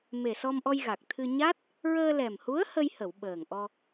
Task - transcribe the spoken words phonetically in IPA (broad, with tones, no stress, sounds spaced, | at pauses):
m e˨˩ s ɔ˧ m ʔ ɔ˧ j ɣ a˨˩ k̚ t̪ʰ ɨ˧ ɲ a˦˥ t̚ | ɹ əː˧ l ɛ˨˩ m h u˧˥ ə̯ h ə˧ j h ə˨˩˨ w ɓ əː˨˩ ŋ ʔ ɔ˧